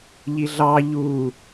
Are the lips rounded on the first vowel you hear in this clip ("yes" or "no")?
no